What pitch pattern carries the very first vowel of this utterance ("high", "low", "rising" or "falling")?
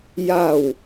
low